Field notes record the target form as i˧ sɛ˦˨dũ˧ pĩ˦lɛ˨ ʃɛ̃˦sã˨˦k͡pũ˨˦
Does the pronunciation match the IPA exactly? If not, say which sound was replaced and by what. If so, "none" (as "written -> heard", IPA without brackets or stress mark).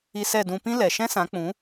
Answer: none